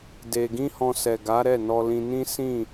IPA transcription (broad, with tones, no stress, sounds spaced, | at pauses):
d e˧ ɡ ĩ˦ h ɔ̃˧ s ɛ˨ ɡ a˨˦ ɾ ɛ˦˨ n ɔ˧ l ĩ˧ n ĩ˦ s ĩ˦˨